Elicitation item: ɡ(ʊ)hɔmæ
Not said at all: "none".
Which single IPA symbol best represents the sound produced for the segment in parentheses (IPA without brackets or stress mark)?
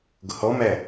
ʊ